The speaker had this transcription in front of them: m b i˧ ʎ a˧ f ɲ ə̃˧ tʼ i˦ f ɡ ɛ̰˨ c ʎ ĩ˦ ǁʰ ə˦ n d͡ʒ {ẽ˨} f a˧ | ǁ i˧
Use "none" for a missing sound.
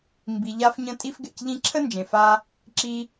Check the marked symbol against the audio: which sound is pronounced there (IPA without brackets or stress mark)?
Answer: ẽ˨